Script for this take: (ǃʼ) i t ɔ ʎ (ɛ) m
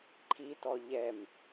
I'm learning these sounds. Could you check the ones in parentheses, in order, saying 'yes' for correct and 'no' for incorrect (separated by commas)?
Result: no, yes